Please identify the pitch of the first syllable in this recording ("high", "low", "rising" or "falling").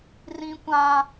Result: low